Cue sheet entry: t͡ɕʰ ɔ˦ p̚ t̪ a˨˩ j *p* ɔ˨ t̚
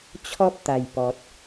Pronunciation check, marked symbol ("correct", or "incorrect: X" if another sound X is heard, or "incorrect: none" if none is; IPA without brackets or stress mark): correct